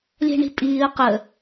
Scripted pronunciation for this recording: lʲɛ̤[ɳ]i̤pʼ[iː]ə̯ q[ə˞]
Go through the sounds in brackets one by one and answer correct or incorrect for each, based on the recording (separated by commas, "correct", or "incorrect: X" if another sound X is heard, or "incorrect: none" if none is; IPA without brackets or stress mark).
correct, correct, incorrect: ə